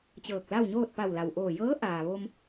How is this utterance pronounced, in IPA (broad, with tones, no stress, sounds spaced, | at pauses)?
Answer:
t͡ɕ ɤː˧˩ k̚ l a˥˨ w ɲ oː˥˨ t̚ p a˧˩ w l a˩ w ʔ oː˧˩ j ɤː˧˥ ʔ aː˩ ʋ o˧ m